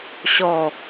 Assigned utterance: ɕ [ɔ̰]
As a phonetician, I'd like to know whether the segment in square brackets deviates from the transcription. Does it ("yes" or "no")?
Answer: yes